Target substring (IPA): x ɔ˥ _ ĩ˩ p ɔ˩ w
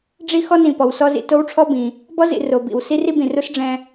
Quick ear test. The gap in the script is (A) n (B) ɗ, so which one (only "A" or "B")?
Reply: A